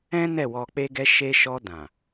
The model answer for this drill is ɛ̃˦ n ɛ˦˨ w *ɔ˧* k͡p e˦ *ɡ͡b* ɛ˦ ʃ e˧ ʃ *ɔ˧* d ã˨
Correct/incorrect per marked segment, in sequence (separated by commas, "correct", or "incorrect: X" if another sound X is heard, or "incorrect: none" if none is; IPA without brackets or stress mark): correct, incorrect: ɡ, correct